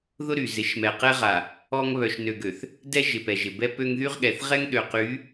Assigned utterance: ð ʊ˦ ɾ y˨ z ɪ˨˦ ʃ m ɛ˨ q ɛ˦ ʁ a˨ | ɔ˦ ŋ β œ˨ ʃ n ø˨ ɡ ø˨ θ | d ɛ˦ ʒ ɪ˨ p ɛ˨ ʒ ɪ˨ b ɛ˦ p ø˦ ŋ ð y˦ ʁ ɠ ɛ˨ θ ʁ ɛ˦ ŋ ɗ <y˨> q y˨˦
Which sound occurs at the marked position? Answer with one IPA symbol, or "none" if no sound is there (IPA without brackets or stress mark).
ø˨